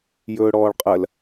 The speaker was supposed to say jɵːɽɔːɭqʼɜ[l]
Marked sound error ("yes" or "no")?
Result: no